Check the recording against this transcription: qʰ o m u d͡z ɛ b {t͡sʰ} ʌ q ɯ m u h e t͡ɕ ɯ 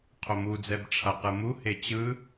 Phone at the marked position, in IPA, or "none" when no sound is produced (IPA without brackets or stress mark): ʈ͡ʂʰ